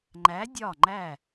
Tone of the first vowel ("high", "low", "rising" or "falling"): rising